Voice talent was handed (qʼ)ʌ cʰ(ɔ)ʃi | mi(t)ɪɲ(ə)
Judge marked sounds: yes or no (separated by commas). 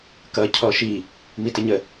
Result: no, yes, yes, yes